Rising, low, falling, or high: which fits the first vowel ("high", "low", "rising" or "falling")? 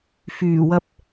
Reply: low